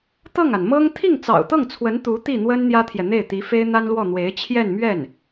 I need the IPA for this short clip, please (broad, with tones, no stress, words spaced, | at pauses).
t̪ɤ˥˩ŋa˩nmɤ˥ŋ t̪ʰi˥˩ŋt͡sɑ̰˨˩ʊ̯t̪ɤ˥˩ŋt͡sʰwə˧˥n t̪u˧˥ t̪i˥˩n̪wə˥n n̪jä˥t̪ʰjɛ˨n̪e˥˩ɪ̯ t̪i˧˥fe˥ɪ̯n̪a˥nlwɔ˥˩ n̪we˧˥ɪ̯ t͡ɕʰjɛ˥˧nmɥɛ˥˩n